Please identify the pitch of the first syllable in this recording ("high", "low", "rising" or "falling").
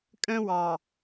high